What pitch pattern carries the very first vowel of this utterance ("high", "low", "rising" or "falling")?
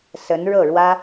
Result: rising